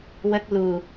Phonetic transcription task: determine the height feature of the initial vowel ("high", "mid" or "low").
mid